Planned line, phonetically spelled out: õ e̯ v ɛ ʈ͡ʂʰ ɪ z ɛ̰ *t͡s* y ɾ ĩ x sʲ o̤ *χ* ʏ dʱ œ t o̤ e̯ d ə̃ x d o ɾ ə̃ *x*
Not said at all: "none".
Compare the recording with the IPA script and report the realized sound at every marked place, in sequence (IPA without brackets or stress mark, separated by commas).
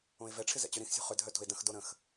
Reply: t͡ɕ, χ, x